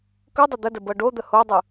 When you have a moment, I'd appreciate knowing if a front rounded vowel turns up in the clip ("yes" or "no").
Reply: no